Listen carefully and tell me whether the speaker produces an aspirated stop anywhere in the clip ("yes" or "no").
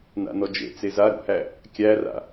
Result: no